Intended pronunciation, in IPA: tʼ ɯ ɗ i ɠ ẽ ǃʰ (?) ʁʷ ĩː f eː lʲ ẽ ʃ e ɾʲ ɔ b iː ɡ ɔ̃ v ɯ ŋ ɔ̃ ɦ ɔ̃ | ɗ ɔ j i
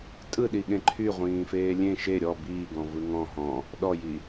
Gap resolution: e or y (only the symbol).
y